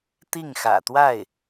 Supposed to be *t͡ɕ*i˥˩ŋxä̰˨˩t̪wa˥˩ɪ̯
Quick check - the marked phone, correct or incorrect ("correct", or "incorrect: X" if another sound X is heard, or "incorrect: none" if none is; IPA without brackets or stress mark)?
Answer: incorrect: t̪